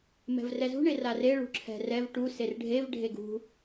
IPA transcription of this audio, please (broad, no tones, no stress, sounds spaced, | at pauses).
m ɛ̤ v r ɛ z ṳ ɳ e r a r e ɭ ṳ ǁʰ ɛ̤ r ɛ v ʈ u s e r ɖʱ e v ɖʱ e ɡ ṳ